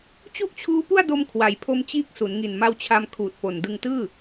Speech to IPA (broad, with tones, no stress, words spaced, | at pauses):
t͡ɕu˥˩ʔt͡ɕʰuː˦˥pu˥˩a̯do˧m kʰwa˩˦jpʰo˦˥mt͡ɕiː˦˥k̚ su˩˦nŋi˨˩n ma˧wt͡ɕʰa˧m kʰuː˨˩t̚po˨˩ndɯ˧ŋtɯː˥˩